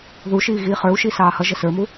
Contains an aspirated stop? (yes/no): no